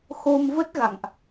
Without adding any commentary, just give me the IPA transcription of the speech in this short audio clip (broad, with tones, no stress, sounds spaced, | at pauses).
x o˧ m v ə˦˥ t̚ ɣ a̰˧˨ ŋ ʔ